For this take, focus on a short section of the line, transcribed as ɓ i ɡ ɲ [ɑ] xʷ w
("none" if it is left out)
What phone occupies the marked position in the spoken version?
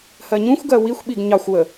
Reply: ɑ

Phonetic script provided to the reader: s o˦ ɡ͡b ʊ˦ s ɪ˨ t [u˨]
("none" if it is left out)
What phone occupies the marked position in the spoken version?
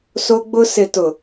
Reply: ʊ˨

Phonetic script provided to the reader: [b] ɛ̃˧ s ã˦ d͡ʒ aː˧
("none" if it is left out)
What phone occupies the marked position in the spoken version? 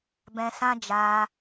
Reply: b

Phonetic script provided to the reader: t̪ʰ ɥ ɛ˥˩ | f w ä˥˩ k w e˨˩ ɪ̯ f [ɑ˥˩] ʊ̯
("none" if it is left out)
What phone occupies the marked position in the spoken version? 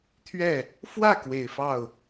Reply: ɑ˥˩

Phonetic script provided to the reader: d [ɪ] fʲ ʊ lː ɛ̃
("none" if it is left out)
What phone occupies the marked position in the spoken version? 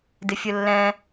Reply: ɪ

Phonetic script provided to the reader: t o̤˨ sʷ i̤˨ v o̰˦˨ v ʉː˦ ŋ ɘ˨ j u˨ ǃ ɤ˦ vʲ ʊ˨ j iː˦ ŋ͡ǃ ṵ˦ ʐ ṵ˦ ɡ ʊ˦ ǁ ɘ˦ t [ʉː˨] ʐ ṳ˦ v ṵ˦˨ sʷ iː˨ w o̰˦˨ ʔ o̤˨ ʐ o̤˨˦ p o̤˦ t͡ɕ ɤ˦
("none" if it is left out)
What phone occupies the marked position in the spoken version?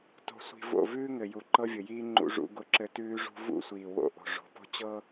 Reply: ʉː˦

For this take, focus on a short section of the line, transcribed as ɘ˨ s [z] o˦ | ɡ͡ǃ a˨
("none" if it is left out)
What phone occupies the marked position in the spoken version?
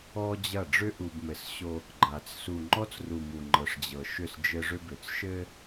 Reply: ɕ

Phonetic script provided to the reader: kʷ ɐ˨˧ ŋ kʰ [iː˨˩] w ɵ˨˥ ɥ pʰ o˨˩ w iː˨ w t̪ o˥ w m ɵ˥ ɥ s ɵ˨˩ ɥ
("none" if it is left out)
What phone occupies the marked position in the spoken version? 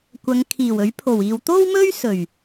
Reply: iː˨˩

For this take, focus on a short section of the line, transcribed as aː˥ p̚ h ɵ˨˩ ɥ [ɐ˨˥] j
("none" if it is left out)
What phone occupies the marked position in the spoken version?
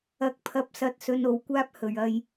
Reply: ɐ˧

